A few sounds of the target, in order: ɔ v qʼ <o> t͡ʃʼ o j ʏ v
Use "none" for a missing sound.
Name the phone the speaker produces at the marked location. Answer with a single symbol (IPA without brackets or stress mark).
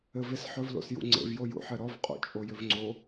o̰